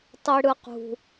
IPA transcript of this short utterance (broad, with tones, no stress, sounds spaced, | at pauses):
tˤ i˨ ɽ ɯ˨ q ṳ˨